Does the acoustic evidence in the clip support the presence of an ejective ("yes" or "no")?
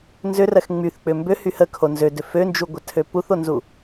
no